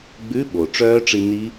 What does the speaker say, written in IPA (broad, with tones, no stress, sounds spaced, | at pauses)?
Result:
ɡ͡b ʉ˧˥˧ ɓ o˩ ʈ͡ʂ œː˦˥ ʈ͡ʂ i˧ n i˦˥